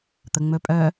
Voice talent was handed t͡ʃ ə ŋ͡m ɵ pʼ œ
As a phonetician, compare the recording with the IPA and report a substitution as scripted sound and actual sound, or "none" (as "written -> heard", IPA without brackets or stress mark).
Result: t͡ʃ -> t̪